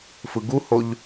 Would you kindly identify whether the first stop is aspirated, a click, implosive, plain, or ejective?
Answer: plain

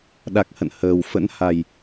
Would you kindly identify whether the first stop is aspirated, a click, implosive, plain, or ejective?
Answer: implosive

